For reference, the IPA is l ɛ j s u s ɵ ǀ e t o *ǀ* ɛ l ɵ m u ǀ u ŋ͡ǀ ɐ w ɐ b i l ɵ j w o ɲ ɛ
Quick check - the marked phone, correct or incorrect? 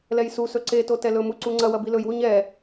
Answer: incorrect